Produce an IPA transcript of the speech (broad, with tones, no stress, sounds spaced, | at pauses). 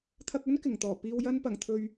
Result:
t̪ʰ ɐ˧ k̚ ɵ˥ n k ɪ˨˩ ŋ t̪ ɔː˨˩ p iː˨ w j ɐ˧ n p ɐ˨˩ ŋ t̪ʰ ɵ˨ ɥ